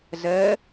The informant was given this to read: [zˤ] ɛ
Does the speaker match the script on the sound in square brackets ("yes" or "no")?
no